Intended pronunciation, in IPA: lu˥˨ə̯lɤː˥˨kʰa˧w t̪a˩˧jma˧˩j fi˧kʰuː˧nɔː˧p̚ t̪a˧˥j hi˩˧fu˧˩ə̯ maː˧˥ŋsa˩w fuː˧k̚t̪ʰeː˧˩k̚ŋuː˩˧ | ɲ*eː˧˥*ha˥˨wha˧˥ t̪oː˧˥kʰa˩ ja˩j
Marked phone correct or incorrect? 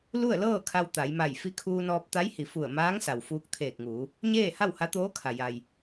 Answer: incorrect